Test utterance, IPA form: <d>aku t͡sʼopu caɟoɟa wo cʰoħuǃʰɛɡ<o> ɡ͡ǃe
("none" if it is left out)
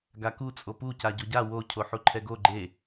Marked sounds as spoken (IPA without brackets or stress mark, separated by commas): ɡ, o